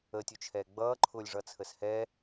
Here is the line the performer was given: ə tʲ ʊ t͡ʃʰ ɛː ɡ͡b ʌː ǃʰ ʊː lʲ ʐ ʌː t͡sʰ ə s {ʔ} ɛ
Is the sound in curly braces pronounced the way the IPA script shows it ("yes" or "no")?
no